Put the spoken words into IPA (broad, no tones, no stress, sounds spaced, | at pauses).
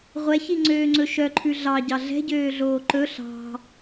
ʁʷ ɛ ç i ŋ͡ǀ øː ŋ͡ǀ ɵ ʃ œ ǃʰ ʉ ɮ ɑ ɟ ɑ ɮ ɛ̤ ɟ øː ɮ oː ǃ ɵ ɬ ɑ̤